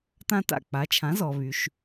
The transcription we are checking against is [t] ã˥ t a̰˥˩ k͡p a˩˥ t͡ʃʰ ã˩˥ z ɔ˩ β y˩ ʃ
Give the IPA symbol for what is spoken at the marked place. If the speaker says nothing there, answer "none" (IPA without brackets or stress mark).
t